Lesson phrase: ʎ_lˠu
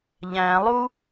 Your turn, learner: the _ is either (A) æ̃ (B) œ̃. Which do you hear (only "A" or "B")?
A